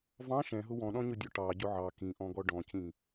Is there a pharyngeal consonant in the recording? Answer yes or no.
yes